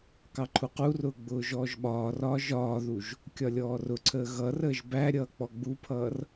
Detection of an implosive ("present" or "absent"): present